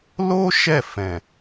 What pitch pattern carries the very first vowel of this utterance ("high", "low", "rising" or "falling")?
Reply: high